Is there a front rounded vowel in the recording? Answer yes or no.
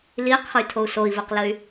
yes